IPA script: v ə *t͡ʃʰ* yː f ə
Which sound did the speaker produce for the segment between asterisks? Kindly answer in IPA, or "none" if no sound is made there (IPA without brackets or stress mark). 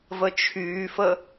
t͡ʃʰ